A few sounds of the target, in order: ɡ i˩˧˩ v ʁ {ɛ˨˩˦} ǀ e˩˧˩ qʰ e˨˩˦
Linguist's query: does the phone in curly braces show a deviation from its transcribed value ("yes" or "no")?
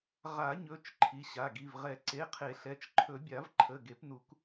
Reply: no